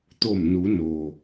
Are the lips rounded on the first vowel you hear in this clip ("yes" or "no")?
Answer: yes